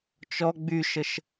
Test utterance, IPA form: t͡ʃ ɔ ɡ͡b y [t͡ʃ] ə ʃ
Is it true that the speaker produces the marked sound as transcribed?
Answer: no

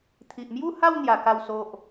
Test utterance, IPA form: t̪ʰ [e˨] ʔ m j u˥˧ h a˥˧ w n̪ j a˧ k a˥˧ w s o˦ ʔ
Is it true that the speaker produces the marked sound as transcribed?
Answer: no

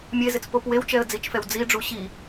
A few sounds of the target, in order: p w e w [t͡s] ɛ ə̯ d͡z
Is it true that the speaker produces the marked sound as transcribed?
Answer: no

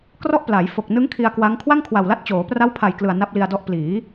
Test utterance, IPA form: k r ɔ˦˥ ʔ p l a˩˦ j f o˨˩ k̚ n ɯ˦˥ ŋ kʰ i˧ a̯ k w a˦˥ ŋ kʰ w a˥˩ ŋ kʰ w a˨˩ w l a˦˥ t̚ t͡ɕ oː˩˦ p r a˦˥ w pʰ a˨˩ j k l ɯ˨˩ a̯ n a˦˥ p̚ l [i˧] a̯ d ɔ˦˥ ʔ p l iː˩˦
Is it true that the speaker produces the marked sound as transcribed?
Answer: yes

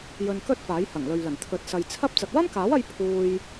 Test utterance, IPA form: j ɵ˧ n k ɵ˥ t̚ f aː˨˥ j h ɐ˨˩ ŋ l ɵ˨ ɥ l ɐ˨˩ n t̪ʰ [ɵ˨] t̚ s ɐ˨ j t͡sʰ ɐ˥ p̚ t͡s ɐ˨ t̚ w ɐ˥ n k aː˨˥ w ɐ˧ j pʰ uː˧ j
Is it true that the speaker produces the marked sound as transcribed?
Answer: yes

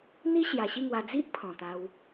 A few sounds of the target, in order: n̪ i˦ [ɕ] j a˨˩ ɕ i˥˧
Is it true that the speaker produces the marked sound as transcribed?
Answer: yes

